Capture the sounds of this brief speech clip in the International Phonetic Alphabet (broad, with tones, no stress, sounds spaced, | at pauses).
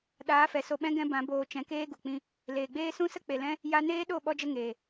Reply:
ɗ aː˨˦ f ɛ˨ s o˧ ɓ ɛ̃˦ ɡ ɛ̃˦ b ã˨˦ b oː˧ t͡ʃ ɛ̃˧ k eː˦ ɡ u˨ k͡p ĩ˦ | l eː˨ ɡ͡b eː˦ s ũ˦ s ə˦ k͡p e˨ l ɛ̃˦ | j a˧ n eː˦ ɗ o˦˨ ɓ ɔ˦ d͡ʒ ə˦ ŋ eː˨